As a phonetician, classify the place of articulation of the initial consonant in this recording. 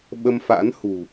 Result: labial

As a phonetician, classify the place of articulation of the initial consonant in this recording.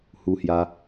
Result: glottal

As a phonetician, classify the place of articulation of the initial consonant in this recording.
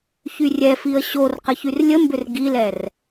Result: palatal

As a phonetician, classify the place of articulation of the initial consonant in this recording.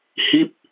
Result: glottal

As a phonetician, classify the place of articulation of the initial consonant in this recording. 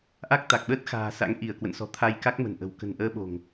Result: glottal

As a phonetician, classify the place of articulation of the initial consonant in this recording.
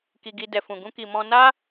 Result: velar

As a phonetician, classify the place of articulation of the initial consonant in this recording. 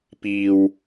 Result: labial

